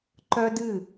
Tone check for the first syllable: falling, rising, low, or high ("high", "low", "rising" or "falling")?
high